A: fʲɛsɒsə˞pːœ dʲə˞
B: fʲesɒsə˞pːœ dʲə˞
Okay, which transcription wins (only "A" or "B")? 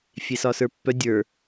B